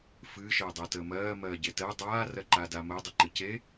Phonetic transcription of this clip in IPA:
f ɨ ʃ əː dˤ ɜ t əː m ɜː m ɜː ɟ e t ɜ dˤ aː r ɜ ǃ aː d a m əː dˤ ʏ ǃ ɨ c e

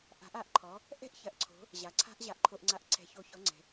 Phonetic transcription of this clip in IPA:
ʔ a̤˨˦ ʔ a˨˦ ʔ ǃʰ ɔ˨˦ | ʔ ɛ̤˥ ʔ ç ɐ˨˦ ʔ ǀʰ o̤˨˦ | ʑ a˨ ǀʰ a̤˥ ʔ ʑ a˨ ʔ ǃʰ o˨ ʔ ŋ͡ǀ a˨˦ ʔ ǀʰ ɛ̤˨˦ ç o˨˦ ç ɔ˨˦ ŋ͡ǀ ɛ̤˨

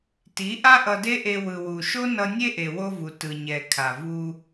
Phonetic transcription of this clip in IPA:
t i˨˦ ʔ a˦ ʔ ʌ˧ d e˦ ʔ e˧ w ɯ˨ w u˨ ʃ o˦ n ʌ˧ nʲ e˦ ʔ e˨ w o˧ v u˨ t ɯ˨ ɲ ɛ˨ kʰ a˨ v u˧

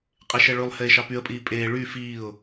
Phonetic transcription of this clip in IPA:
qʼ e ʃ ɛ ɭ ʉ lˠ h eː ʃ ɑ p y ə̯ pʼ iː pʼ eː ɭ y f iː ʊ̯

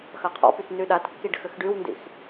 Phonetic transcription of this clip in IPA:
x ɐ qʰ ɔ̰ p y t n y ɗ a t kː i ɖ x ʏ x ɖ y w n d ḭ x

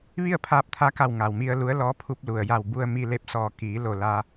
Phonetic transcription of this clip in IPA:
ʋ i˥˨ ə̯ pʰ aː˧ p̚ t̪ʰ a˧˥ k a˧˩ w ŋ a˩ w m i˧ ə̯ l u˧˥ ə̯ l ɔː˧˥ pʰ u˧ p̚ l u˩ ə̯ j a˧˩ w b u˧ ə̯ m i˧ l e˧ p̚ s ɔː˧˩ k iː˩˧ l o˧˩ l a˧

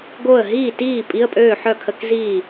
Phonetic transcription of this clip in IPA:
ɡ o˥˩ ə̯ ɦ iː˥˩ t iː˥˩ pʼ i˧˥˧ ə̯ pʼ øː˥˩ ħ œ˥˩ kʰ ə˧˥˧ k z iː˥˩

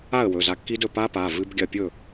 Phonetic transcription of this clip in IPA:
a˥˩ ə̯ w ɵ˩˧˩ z a˧ kː i˦˥ d ɵ˥˩ p a˦˥ p a˩˧˩ v ɨ˦˥ b ɡʲ ɐ˥˩ pʲ ɵ˥˩

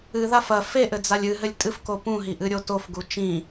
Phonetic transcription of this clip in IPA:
ɨ ð a f ɐ f e ʔ ɘ d͡z a lʲ ɨ ɦ ɘ lʲ tʼ ɨ f k o p ũ ɦ i ʔ ɨ ɾʲ o t o f ɡ u t͡ʃ ĩ

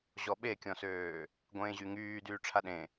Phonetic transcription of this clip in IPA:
ʑ ɔ ɓ e kʲ ɔ̃ s øː | ɡʷ ẽː ʑ y ŋ yː d yː ʈ͡ʂʰ a ɗ ẽ

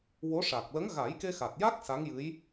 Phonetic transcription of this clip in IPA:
w o˧˥ ʂ a˨˩ k̚ l ə˧˥ ŋ ɣ a˨˩˦ j k e˧ x a˨˩ t̚ j a˦˥ k̚ s a˧˥ ŋ j ɨ˧˥ j

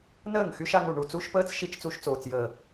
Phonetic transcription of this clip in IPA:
n əː˦˨ ŋ x y˧ ʃ a˧ ŋ u˨ ɳ u˨ t͡s u˧ ʃ p əː˧ t͡s ʃ i˦ t͡ʃ t͡s u˧ ʃ t͡s oː˨ t͡s j əː˨

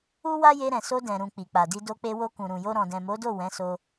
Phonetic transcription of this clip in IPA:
u˦ w a˦ j e˧ ɾ ɛ̃˨ s o˧ d ɛ̃˨ ɾ ũ˨ k͡p i˨ k͡p a˨ d i˧ d o˧ k͡p e˧ w o˧ k ũ˨ ɾ ũ˨ j o˧ ɾ ɔ̃˨ d ɛ̃˨ m o˨˦ d o˦˨ w ɛ̃˨˦ s o˧

